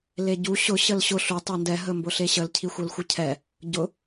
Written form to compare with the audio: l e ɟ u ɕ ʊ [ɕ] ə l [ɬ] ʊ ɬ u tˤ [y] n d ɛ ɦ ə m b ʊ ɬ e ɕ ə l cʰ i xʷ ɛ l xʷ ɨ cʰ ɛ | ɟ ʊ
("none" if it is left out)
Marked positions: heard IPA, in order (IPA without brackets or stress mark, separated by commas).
ɕ, ɕ, e